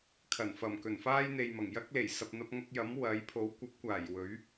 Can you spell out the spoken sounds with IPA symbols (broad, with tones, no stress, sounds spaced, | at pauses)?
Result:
kʰ ɐ˨˩ n f ɐ˨˩ m k ɵ˨˩ n f aː˥ j n̪ e˨ j m ɐ˨˩ ŋ j ɐ˥ k̚ l e˨˩ j s ɐ˨ p̚ n̪ ɐ˧ p̚ ŋ ɐ˧ k̚ j ɐ˨˥ m w ɐ˨˥ j pʰ o˨˥ w kʷ ɐ˨˥ p̚ kʷ aː˨˩ j w ɵ˨˥ ɥ